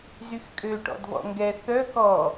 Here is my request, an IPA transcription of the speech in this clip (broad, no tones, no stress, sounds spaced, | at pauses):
z y x kʼ ø ʈ ɔ̰ d v ɔ̰ ŋ ɡ ɛ θ œ k ɔ